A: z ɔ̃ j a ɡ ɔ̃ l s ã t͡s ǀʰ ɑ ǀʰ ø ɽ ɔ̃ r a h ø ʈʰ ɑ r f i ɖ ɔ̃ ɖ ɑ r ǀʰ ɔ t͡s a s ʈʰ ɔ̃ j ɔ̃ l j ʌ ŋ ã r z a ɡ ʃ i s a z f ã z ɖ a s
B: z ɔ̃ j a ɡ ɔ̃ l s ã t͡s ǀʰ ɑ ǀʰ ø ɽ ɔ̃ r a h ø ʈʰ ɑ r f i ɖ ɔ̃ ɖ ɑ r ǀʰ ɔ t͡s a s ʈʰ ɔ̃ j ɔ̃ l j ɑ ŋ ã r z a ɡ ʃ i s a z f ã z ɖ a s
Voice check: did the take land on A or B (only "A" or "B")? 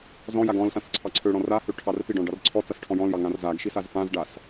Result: B